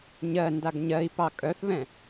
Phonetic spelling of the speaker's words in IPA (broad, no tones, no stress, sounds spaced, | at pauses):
ɲ ɜ n d a ɡ ɲ ɜ i̯ p ɑ kʼ œ θ β ɛ̃